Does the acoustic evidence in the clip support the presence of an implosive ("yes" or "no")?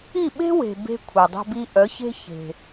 yes